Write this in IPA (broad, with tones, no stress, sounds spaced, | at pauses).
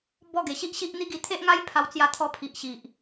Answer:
b ɔ˥˧ ɡ e˨˩ ɕ i˦ ʔ ɕ i˦ ʔ n̪ i˦ ɡ i˧ t̪ʰ e˦ ʔ ŋ a˦ j pʰ a˧ w t͡s j a˧ t̪ʰ ɔ˧ pʰ i˨ ʔ ɕ i˨ ʔ